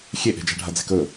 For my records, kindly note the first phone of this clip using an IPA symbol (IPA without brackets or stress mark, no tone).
xʲ